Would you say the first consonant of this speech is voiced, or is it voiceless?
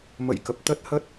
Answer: voiced